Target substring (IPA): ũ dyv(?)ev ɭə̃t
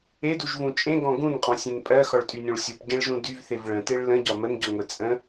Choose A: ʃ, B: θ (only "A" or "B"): B